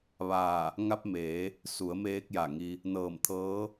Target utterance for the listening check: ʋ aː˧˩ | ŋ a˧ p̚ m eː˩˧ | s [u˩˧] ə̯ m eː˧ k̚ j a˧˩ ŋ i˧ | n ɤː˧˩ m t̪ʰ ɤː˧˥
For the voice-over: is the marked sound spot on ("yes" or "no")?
yes